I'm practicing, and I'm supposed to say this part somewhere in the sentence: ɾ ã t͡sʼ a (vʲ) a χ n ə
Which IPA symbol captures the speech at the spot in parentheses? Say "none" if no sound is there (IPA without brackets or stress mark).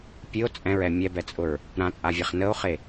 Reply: vʲ